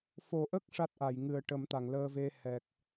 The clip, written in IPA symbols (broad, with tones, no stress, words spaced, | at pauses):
fo˨˩ʔə˦˥k̚ ʂa˦˥t̚ʔa˨˩˨j ŋɨ˨˩ə̯ʈə˨˩˦mt̪a˨˩˨ŋ ləː˧ve˧ hɛ˨˩k̚